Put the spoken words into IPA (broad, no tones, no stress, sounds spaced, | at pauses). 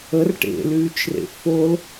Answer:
ə r ʈ ḛ l yː t͡ʃ r ḛ f o l